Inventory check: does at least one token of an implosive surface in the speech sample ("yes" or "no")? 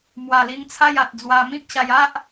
no